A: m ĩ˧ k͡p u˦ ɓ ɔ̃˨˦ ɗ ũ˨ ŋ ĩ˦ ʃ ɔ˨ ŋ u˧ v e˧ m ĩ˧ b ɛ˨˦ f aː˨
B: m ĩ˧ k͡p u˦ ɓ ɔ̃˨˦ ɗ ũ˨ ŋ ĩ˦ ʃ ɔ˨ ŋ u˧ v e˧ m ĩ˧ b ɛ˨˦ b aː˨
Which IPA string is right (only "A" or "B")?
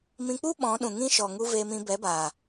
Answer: B